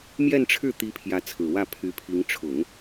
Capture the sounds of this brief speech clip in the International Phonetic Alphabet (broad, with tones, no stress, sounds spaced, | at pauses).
m j ɛ˥˧ n ʈ͡ʂʰ ɻ̩˥˩ t̪ i˧˥ pʰ j ä˧˥ t͡sʰ ɹ̩˨˩ w ä˥˩ pʰ y˧˥ pʰ i˧˥ ŋ ʈ͡ʂʰ ʊ˨˩˦ ŋ